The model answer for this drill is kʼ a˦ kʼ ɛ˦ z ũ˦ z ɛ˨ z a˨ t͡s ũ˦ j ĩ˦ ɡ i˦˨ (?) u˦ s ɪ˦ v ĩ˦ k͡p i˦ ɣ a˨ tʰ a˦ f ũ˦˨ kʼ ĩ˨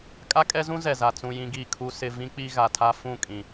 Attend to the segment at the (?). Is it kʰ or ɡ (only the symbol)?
kʰ